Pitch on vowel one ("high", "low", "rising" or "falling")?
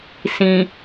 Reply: low